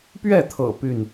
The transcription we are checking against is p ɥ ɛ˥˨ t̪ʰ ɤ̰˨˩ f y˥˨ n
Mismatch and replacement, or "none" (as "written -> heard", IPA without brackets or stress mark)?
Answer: f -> p